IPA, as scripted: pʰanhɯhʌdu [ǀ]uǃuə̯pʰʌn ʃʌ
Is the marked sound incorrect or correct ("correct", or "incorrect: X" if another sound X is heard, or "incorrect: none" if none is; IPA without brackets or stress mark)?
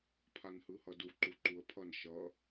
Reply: incorrect: ǃ